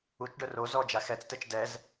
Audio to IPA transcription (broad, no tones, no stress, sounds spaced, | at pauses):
u t͡ʃ ɖ œ r o z ɔ d͡ʒ a x ɛ t͡s t ɛ t͡ʃ d ɛ z